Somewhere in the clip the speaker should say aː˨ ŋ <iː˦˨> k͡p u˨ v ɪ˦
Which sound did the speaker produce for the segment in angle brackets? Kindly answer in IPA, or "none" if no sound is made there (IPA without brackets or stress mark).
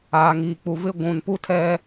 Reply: iː˨